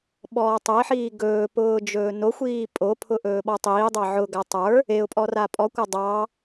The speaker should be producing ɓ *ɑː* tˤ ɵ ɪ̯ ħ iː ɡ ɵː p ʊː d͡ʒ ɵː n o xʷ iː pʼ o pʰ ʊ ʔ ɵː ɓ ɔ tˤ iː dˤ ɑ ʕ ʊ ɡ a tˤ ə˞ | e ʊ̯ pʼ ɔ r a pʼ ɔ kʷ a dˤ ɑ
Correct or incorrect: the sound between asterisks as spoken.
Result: incorrect: ɔː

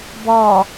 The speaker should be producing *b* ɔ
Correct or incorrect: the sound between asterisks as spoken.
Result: correct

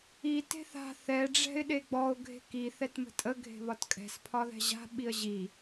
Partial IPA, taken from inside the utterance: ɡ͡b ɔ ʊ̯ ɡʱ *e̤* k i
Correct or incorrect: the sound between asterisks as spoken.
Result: correct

